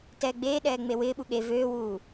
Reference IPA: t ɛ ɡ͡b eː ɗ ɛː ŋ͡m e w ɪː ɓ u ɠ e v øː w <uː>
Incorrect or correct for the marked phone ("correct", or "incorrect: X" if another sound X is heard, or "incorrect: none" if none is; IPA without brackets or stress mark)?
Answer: correct